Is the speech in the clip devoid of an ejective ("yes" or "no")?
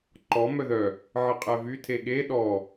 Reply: no